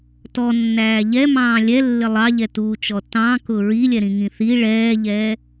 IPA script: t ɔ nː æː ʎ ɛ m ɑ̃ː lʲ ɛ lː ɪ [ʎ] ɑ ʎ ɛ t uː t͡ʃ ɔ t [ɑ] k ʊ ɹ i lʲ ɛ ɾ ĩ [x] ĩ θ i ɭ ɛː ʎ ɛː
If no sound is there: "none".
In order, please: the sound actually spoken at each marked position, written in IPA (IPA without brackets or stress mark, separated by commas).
lˠ, ɑ̃, ŋ